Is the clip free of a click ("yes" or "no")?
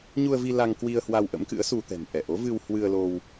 yes